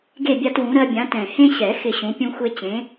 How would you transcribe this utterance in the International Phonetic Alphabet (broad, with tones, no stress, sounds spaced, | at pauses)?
ɡ e˥˨ bʲ a˦ t w ũ˨˥ ɾ ɜ˦ bʲ ã˨˥ t ɛ̃˨˩ h ẽ˦ ɕ ɛ˨˩˦ x ɪ˥˨ ɕ ũ˨˥ pʲ ũ˦ xʷ e˦ t͡ɕ ẽ˨˥